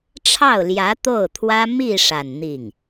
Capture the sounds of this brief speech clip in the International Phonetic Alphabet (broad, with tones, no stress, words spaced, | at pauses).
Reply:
ʈ͡ʂʰɑ˥˩ʊ̯ljä˧˥ t̪o˥˩ʊ̯t̪ʰwä˥ mi˥˧ ʂa˥˧n n̪i˥˩ŋ